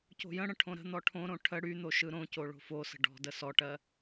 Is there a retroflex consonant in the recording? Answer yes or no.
yes